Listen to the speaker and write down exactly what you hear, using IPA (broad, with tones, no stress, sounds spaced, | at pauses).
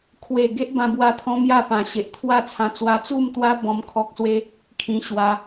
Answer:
kʰ w e˥˧ ɡ e˦ ʔ b ã˧ b w a˧ t̪ʰ ɔ̃˦ m j a˥˧ p ã˨˩ ɕ e˨ ʔ t̪ʰ w a˥˧ t͡sʰ ã˧ t͡s w a˧ t͡s u˥˧ m t̪ w a˦ b ɔ̃˦ m kʰ ɔ˦ k̚ s w e˦ | kʰ ĩ˧ ɕ w a˧